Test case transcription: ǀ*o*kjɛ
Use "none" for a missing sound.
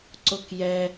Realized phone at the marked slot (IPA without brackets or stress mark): o